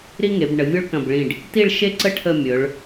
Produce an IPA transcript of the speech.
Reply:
ɾi˥ŋe˩˧bɳə˩˧ vʲo˥ɭkɐ̃˧˩bɭĩ˧˩ɖ | ti˥˧ɭʃe˥˧ǀə˥ ʈʰə˥˧mʲɵ˩˧ɭ

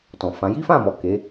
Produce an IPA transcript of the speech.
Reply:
tɔ̃˨fã˨˦ ji˦fã˦˨mɔ˨ ke˨˦

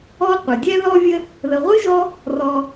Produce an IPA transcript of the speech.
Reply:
ɔ˥ qʷə˩dʲɛ˦ðɔ˦vʲə˦ | ðə˨ʁʷɨ˥ʒɔ˦ | rɔ˨

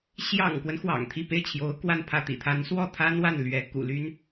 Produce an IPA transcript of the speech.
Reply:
ɕjɑ̰˨˩ŋkwə˦n xwɑ̰˨˩ŋt̪ʰi˥˧ pe˥˩ɪ̯t͡ɕʰjo˧˥ʊ̯ kwa˥˧npʰä˥˩ t̪ḭ˨˩t̪ʰa˧˥n swɔ˥˩t̪ʰa˥n wa˥˩n lɥɛ˧˥ kṵ˨˩ly˥n

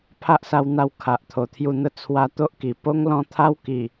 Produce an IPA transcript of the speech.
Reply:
pʰa˦ʔsa˧wn̪a˧w kʰa˨ʔt̪ʰo˨˩t̪ʰju˧n̪ə˦ t͡sʰwa˧t̪o˦ʔki˨˩ po˦ŋlɔ̃˥˧t̪ʰa˦w ki˨˩

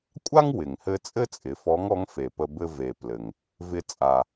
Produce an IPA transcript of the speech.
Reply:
kʷʼa˥ŋwɪ˩ŋhɘ˧ t͡sʼɘ˥t͡sʼɪ˩˧fɔ˧˥ŋ ɔ˧˥ŋfe˩pə˧ bɘ˧ve˩ plɘ˩ŋ | vɪ˧ t͡sʼa˩

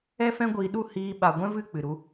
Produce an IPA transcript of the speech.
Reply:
ɛ˦fɛ̃˦ɡʷiː˧ɗu˦˨ hiː˧ ɓa˨ ɡʷɛ̃˦vɨ˦˨ k͡pɨ˨ɾu˧

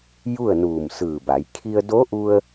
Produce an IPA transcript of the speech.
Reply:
ju˥˨ə̯nuː˧˩msɯː˧˩ba˩˧j kʰi˧ə̯do˧˥ʔu˧ə̯

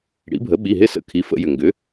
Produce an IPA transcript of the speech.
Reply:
ɽḭ˩˥bʱə˩˥ ɓi˩˧˩ɦɪ˦˨sə̰˧˩˧ kʰi˩˧˩ fə̰˧˩˧jʏ˩ŋɡʏ˩˥

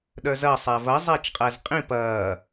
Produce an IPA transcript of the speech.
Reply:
ɗœzɐ sˤævɐ zˤæt͡ʃqʼæzqʼĩ pɐː

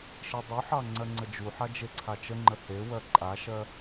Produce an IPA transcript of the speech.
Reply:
ʃidˤuħɑ ŋ͡ǀɜŋ͡ǀəd͡ʒuħa d͡ʒeǀʰat͡ʃəŋ͡ǃə he wɜǃʼaʃɜ

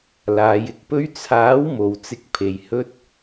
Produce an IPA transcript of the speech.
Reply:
laː˨˧j ɪ˧k̚pɵ˥ɥ t͡sʰaː˨˥w mo˨wt͡sɪ˧k̚ pʰe˨j hɵ˥t̚

